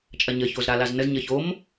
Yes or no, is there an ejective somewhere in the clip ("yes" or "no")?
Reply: yes